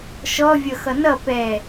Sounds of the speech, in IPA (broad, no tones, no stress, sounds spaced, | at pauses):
ʃ ɔ vʲ ʌ x ʌ n ʌ p ɛ